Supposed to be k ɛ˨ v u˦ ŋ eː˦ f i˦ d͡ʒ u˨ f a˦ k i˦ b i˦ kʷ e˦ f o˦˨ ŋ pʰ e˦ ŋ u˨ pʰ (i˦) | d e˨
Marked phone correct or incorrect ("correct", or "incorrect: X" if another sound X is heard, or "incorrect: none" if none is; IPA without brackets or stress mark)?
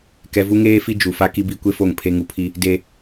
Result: correct